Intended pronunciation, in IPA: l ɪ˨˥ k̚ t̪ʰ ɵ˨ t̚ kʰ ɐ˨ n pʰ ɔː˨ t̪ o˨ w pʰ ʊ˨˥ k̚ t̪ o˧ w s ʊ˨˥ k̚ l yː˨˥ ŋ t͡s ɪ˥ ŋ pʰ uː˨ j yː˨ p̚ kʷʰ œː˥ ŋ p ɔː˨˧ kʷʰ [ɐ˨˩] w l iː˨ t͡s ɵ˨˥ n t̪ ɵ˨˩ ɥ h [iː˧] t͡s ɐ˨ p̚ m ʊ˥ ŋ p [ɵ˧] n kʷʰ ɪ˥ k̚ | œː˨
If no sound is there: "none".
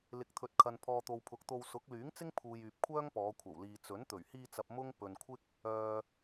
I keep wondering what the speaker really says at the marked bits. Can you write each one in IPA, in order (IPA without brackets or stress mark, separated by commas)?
ɐ˨˩, iː˧, ɵ˨